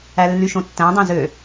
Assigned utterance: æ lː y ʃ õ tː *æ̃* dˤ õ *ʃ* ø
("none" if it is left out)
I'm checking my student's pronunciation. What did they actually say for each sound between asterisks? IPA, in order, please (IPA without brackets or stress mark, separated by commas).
æ̃, z